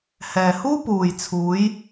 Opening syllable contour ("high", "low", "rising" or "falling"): low